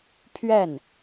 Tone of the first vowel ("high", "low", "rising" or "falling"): falling